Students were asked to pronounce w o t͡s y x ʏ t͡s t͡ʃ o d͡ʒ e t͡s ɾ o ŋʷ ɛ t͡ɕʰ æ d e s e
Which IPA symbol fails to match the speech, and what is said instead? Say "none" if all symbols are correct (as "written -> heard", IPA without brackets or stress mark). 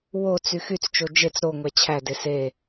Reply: ʏ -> y